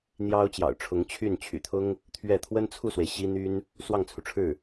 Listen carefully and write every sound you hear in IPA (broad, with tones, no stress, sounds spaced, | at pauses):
n̪ j ɑ˥ ʊ̯ t͡ɕ j ɑ̰˨˩ ʊ̯ ʈ͡ʂʰ ʊ˧˥ ŋ t͡ɕʰ y˥˩ n t͡ɕʰ y̰˨˩ t̪ʰ ʊ˥ ŋ | t̪ʰ ɥ ɛ˥˩ t̪ʰ w ə˥ n t͡sʰ u˥˩ s w e˩ ɪ̯ ɕ i˥ n̪ y˥ n | s w ɑ˥˩ ŋ t͡sʰ u˩ ʈ͡ʂʰ ɻ̩˥˩